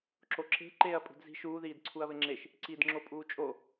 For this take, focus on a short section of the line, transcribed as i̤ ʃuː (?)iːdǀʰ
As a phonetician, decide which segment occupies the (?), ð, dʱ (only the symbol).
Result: ð